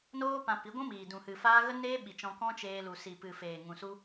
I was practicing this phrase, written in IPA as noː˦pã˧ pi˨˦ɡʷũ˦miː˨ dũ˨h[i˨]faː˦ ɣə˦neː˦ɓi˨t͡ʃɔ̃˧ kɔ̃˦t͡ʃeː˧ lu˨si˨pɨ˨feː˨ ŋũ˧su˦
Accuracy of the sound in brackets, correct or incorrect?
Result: incorrect